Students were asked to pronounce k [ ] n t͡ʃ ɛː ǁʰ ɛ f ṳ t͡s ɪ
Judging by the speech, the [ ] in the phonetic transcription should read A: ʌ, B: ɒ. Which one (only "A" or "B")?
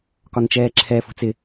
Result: B